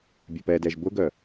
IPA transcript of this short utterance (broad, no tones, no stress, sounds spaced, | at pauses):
bʲ a p ɛ d ɛ ʒ b ʊ ɡ œ